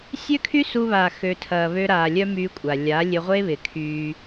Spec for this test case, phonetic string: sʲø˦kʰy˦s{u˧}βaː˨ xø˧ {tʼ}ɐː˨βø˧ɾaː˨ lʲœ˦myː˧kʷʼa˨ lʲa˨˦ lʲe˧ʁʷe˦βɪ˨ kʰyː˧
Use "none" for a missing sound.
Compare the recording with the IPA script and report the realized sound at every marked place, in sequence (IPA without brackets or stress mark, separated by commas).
u˧, tʰ